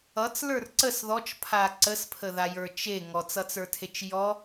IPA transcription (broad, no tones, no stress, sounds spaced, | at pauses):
ʌ t͡s l ə˞ r ǀ ə s ð ɔ t͡ʃ pʰ a ǀ ə s pʰ ə ð a j ə˞ t͡ʃ e ŋ ɔ t͡s ʌ t͡s ə˞ tʰ e t͡ʃ j ɔ